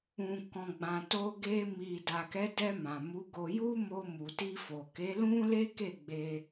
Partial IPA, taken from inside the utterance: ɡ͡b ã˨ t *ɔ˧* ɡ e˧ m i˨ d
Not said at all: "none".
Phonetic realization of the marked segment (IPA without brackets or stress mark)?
o˧